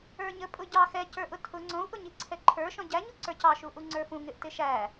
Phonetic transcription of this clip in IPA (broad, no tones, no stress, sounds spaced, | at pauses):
ə˞ ɲ ə pʼ ʊ ɟ ɑ x ɛ c ə˞ ʔ ʊ tʰ ʊ ŋ͡ǀ ɔ̃ u̯ ʔ ʊ ɲ i ǀʰ ɛ ǃʰ ə˞ ʃ ɔ̃ ɟ æ ɲ u ǀ ə˞ c ɑ ʃ u ʔ u ŋ͡ǀ ə˞ f ũ ŋ ɪ ʔ t ɪ ʃ æ